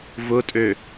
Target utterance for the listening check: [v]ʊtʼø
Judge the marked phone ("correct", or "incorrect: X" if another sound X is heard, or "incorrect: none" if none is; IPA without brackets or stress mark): correct